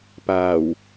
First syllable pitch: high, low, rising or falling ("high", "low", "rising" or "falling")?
low